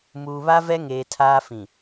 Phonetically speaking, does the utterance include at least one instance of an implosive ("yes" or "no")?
no